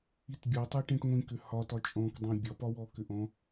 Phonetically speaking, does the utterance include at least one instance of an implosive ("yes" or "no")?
no